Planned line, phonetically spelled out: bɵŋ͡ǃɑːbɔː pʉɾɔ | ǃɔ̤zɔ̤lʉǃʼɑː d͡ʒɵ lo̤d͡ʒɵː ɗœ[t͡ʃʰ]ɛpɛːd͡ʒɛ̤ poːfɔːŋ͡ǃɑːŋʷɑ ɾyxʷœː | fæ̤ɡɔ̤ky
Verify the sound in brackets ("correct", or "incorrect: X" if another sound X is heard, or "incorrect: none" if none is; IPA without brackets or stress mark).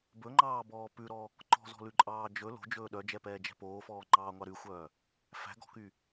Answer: incorrect: d͡ʒ